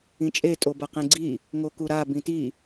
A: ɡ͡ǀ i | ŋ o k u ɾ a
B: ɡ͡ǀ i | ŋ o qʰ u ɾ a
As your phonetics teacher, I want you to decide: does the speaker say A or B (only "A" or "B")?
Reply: A